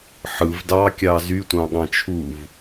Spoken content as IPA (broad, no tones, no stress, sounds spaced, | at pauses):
ħ ɯ v d ɑ kʲ ɑ z y tʷ ɑ̃ ɠ ɑ̃ t͡ʃʰ u v